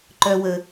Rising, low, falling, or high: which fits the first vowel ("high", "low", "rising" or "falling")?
high